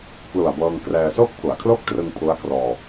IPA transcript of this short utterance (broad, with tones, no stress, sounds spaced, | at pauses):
k l u˨˩ a̯ b ɤː˧ ŋ k r ɛː˧ s oː˥˩ k̚ pʰ u˩˦ a̯ kʰ l o˥˩ k̚ t r ɯ˧ ŋ pʰ u˦˥ a̯ k r ɔː˧